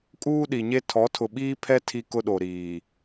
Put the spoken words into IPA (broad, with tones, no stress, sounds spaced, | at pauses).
kʼ uː˦ ɗ i˨ ɲ e˦ tʰ ɔ˨˦ tʰ ʊ˨ ɓ iː˦ pʰ ɛ˦ tʰ i˦ k ʊ˦ ɗ o˨ ɾ iː˨